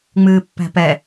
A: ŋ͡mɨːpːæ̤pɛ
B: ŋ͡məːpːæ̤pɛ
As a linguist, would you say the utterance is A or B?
A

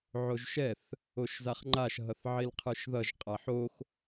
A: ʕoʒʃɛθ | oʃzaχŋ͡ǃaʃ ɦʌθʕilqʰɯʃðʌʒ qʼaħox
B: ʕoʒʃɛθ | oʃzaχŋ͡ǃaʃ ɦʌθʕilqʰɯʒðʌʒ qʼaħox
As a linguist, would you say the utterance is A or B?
A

